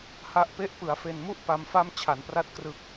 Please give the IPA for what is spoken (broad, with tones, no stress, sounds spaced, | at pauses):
h a˦˥ ʔ p e˥˩ ʔ p ɯ˩˦ a̯ f e˨˩ n m u˥˩ ʔ p a˧ m f a˥˩ m t͡ɕʰ a˩˦ n p r a˦˥ t̚ k r ɯ˨˩ k̚